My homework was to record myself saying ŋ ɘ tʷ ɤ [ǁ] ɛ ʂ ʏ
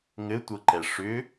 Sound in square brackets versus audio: incorrect: ǃ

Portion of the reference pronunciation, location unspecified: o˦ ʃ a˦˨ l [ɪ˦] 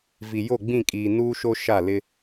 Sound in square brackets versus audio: correct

